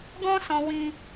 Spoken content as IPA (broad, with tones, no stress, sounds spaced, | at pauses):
ɡ ɔ̃˦ s ɔ̃˧ w ĩ˧